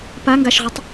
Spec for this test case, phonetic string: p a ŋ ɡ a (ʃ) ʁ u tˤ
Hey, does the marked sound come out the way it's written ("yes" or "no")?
yes